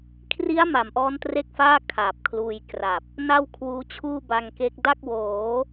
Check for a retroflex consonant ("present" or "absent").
absent